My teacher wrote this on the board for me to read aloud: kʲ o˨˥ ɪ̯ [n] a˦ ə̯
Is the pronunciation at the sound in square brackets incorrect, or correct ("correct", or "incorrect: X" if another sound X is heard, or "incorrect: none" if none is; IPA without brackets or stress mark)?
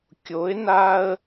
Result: correct